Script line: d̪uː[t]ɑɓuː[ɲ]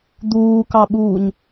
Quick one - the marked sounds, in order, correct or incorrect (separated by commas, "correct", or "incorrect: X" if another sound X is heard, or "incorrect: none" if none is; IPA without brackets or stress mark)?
incorrect: k, correct